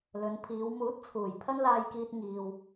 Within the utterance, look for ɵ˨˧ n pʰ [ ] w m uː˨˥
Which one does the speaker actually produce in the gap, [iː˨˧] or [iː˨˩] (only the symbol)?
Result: iː˨˧